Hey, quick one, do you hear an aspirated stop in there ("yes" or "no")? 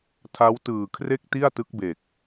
yes